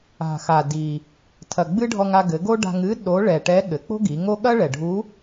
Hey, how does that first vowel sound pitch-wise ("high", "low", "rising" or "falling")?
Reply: low